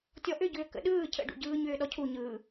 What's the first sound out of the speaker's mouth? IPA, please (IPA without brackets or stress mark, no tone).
tʲ